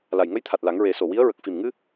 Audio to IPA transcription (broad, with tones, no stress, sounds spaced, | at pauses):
l a˨˩ j ŋ ə˧˥ j t̪ʰ a˨˩ t̚ l a˨˩˦ ŋ ɹ e˨˩˦ s o˨˩ w i˧˥ ə̯ ɹ ə˨˩ k̚ f i˨˩ m ŋ ɨ˧